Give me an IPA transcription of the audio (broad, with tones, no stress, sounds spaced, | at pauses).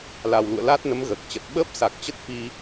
l a˨˩ w l ṵ˧˨ ə̯ l aː˦˥ t̚ n ə˨˦ m ɣ əː˨˩ k̚ t͡ɕ ə˨˩ t̚ ɓ əː˦˥ p̚ s a˨˩ k̚ t͡ɕ ə˦˥ t̚ f i˧